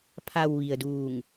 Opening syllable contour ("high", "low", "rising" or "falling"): low